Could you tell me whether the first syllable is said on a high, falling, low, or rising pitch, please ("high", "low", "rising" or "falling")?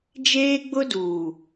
high